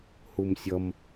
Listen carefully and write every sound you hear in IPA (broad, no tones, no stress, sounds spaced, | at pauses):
h u m sʲ ʌ m